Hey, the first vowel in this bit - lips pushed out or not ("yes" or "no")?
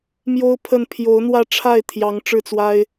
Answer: yes